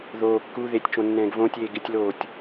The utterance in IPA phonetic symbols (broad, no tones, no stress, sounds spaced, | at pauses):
ð oː kː u ð e tʲ t͡ʃ õ nː ɛ̃ː ɡ v õ tʲ eː ɡ ɪ tʲ l oː tʲ